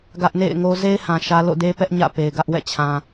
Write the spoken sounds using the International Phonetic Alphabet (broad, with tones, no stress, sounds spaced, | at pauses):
ɡ ä˦ ʔ n ḛ˦˨ ɪ̯ ŋ o˦ z e˦ ɪ̯ h ã˨ ʃ ä˦ l o̰˦˨ d e˦ p ɛ˦ ʔ ɲ ä̰˦˨ p e˨ ɪ̯ ɡ ä˦ ʔ w ɛ̰˦˨ t͡ɕʰ ã˨